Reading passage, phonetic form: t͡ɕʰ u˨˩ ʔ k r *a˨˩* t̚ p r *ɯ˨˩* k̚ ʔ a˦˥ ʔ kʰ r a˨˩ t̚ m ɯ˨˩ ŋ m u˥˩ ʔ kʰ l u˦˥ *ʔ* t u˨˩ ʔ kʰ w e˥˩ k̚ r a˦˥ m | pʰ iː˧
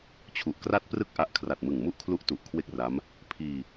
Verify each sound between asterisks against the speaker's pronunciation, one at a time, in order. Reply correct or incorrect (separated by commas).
incorrect, incorrect, correct